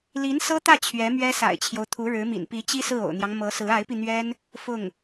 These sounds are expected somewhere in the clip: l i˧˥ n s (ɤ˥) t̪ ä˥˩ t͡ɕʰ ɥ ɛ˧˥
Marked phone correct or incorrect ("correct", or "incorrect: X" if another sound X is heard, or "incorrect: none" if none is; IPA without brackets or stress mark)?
correct